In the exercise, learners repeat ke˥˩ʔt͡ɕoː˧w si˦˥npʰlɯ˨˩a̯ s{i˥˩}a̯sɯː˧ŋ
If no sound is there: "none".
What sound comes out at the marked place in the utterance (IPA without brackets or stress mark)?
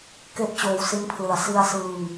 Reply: i˧